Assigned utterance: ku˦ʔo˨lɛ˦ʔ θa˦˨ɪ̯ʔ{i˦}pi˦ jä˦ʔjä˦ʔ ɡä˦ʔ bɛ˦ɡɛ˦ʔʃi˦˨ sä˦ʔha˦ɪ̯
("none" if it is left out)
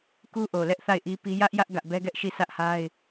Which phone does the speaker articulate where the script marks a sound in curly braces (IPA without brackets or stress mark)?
i˦